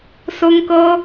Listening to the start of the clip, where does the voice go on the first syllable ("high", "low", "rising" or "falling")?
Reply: high